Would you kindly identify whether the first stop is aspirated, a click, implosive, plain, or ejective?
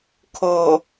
aspirated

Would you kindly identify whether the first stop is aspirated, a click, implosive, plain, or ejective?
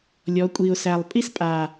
ejective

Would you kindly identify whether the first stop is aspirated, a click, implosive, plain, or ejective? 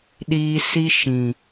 implosive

